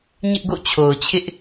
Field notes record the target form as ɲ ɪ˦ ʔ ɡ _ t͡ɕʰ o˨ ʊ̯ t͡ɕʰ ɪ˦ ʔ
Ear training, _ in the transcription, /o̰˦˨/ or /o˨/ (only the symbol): o̰˦˨